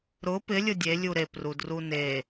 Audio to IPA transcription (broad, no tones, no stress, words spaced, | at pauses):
ɾʊ pɪlʲʊ dʲelʲu ɾeprudru ne